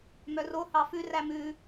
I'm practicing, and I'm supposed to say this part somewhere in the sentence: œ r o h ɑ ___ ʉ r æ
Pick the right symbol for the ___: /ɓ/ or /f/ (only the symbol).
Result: f